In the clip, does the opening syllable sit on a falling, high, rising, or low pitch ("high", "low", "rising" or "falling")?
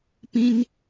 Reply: high